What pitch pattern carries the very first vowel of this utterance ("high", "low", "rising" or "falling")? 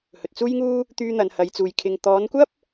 low